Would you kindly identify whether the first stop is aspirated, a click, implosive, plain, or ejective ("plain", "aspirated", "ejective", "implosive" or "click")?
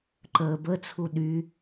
click